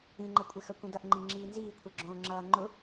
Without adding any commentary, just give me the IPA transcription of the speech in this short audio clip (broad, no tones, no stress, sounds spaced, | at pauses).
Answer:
ĩ ŋ͡ǃ ə kʷʼ ɪ x œ kʷ ĩ d ʌ ʔ ŋ͡ǃ ĩ ŋ͡ǁ iː n z iː kʷʰ ɛ ɡ͡ǁ õː ŋ͡ǁ ʌː ŋ͡ǃ ʊ